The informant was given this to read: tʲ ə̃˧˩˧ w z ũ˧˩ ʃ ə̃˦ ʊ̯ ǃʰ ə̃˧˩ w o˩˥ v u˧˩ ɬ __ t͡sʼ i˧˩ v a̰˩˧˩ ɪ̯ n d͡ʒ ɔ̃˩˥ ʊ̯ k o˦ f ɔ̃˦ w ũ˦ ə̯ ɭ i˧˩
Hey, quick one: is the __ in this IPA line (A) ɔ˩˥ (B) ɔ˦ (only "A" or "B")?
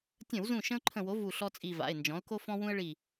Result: B